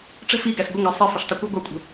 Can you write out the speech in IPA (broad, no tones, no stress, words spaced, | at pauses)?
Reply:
ʈ͡ʂə̤ fiɡæs ɡʷəŋɛ sˤifəʃtˤəkʷi ɡʷə˞kʷʼə̤